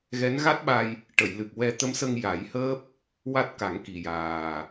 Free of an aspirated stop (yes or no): yes